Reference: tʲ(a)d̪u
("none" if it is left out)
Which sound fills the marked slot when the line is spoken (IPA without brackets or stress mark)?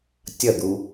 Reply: ɐ